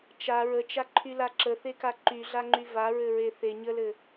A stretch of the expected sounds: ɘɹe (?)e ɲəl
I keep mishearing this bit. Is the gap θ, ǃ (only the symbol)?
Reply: θ